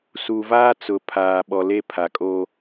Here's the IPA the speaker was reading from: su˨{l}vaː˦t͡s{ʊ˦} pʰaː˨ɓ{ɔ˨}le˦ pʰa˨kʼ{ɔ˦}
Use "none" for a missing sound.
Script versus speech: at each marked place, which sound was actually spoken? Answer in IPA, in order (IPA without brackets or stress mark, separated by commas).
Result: none, ʊ˨, ɔ˨, o˦